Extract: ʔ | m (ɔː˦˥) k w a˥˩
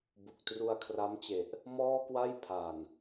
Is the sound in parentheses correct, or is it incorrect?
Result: incorrect